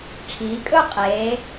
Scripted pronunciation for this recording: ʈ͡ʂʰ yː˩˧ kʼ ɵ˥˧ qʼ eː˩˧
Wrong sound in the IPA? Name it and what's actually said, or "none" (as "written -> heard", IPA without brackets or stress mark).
yː˩˧ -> iː˩˧